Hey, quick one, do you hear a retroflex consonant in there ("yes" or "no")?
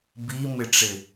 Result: yes